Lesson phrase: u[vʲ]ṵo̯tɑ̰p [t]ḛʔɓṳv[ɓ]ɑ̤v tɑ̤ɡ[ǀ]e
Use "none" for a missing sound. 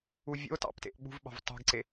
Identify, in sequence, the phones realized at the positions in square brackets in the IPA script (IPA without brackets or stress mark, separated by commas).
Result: vʲ, t, ɓ, ǀ